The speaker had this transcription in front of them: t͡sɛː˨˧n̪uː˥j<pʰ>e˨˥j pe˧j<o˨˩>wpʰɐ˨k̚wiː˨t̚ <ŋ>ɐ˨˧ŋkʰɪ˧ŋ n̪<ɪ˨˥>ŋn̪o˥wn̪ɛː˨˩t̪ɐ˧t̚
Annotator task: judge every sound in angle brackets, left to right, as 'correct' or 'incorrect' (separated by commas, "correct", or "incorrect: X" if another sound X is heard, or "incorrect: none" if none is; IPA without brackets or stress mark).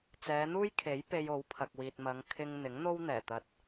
incorrect: kʰ, incorrect: o˨˥, incorrect: m, correct